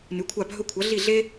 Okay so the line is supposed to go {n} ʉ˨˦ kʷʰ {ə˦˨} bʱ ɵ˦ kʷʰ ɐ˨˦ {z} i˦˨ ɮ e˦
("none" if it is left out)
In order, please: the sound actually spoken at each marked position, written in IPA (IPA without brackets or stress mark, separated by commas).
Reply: n, a˦˨, ɮ